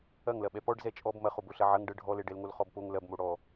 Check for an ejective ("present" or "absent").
present